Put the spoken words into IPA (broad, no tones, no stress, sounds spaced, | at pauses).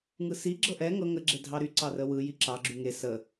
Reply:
ŋ ɯ s i ɡ͡ǁ ɤ ʔ ɛ ŋ ɤ ŋ ə ɡ͡ǁ e dʱ ɑ ɾ y ǀ ɑ r ə w ɯ j i ǁ ɑ ɡ͡ǁ y ŋ e s ə